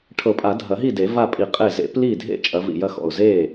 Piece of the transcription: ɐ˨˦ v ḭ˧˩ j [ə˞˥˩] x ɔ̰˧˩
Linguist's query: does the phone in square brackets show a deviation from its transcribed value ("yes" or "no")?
yes